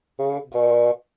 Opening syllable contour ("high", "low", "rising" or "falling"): high